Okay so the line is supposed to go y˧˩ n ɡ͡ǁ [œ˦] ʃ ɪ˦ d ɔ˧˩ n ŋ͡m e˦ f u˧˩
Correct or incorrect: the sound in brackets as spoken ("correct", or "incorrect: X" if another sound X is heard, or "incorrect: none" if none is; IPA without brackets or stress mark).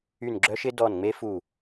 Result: correct